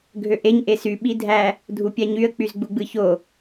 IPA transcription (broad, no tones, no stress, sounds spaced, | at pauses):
ɡʱ ø ʔ e ɲ ʔ e s y ɓ i dʱ æ | dʱ u pʲ æ ɲ y ə̯ k͡p y z ɡ͡b u ɡ͡b ɯ ç o